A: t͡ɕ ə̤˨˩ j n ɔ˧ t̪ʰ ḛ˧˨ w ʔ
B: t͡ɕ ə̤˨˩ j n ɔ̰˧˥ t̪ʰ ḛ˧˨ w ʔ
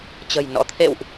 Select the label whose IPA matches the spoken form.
B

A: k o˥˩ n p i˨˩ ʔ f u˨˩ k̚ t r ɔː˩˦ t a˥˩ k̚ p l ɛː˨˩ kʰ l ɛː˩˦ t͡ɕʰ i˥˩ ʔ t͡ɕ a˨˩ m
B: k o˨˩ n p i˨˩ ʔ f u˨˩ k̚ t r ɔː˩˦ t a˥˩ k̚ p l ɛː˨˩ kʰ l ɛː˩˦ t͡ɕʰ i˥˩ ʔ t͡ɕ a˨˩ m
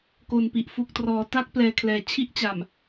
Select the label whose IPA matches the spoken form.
B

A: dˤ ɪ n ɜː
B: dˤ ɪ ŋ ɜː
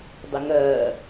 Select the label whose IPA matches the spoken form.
B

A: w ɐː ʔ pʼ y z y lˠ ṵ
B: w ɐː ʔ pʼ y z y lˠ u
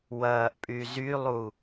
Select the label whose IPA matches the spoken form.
B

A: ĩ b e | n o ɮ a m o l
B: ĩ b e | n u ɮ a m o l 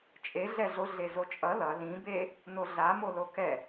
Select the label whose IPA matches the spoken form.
A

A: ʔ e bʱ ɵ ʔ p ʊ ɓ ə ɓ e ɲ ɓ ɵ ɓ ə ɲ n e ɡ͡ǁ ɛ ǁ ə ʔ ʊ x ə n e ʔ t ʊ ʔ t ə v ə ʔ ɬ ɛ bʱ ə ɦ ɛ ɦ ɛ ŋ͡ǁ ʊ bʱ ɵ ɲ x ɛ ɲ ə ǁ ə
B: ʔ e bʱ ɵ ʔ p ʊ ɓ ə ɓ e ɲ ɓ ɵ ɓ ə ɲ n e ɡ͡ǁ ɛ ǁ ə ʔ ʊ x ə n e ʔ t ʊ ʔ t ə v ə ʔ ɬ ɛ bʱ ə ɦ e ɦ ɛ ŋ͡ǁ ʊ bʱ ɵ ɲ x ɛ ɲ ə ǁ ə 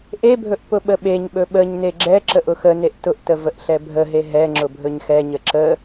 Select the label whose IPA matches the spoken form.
B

